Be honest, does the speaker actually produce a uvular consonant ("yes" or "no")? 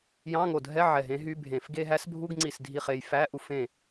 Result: yes